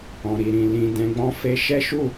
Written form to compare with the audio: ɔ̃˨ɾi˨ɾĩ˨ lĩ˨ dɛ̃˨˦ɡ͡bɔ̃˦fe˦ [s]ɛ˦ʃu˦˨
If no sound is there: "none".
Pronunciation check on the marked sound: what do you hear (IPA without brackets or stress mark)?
ʃ